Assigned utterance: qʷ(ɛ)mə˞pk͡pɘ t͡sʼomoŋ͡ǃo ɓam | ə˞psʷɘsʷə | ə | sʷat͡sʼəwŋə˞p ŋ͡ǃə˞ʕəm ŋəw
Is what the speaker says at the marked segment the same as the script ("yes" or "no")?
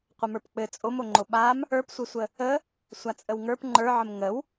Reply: no